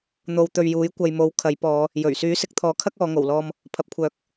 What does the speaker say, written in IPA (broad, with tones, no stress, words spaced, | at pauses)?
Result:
n̪o˨˧wt̪ɵ˨ɥjuː˨˥j kʷɐ˨jmo˨˥w kʰɐ˨˥jpɔː˨˧ | jɵ˨˩ɥ syː˨˥sɪ˨k̚t̪ʰɔː˨˥kʰɐ˥k̚ ɔː˨˧ ŋo˨˩w lɔː˨m | pʰɐ˨p̚kʷʰœː˨˥k̚